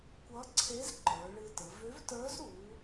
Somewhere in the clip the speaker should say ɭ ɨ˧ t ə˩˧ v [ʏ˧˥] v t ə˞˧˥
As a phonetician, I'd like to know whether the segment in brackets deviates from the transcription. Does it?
no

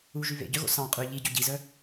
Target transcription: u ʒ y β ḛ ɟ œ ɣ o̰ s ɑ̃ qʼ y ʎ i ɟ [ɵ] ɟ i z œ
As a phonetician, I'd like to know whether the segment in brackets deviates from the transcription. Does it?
no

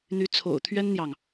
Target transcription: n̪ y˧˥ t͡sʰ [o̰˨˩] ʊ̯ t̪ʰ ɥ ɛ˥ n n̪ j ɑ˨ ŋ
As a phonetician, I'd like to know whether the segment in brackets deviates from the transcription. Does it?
no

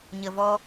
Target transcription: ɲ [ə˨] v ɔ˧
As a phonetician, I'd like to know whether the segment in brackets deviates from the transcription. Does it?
no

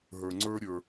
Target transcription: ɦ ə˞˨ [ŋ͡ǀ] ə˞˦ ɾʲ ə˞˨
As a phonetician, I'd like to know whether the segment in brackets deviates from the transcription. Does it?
no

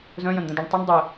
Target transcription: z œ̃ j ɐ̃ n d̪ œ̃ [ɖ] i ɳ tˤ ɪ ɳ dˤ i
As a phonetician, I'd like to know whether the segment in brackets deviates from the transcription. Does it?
yes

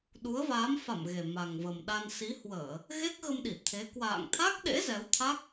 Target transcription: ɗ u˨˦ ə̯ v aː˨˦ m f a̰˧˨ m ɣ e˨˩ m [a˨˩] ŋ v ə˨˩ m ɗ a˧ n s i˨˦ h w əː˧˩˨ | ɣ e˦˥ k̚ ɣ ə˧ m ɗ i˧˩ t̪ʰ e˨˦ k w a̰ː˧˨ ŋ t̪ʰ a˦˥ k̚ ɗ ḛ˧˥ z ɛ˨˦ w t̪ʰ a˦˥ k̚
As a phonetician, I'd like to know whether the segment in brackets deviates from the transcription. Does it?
no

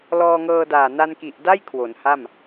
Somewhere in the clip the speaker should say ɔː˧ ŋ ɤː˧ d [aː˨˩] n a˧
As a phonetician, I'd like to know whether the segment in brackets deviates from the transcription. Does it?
no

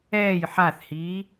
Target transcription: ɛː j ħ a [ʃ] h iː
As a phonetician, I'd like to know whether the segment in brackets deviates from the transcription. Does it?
yes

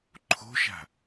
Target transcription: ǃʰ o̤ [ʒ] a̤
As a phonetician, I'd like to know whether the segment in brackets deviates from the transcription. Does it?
yes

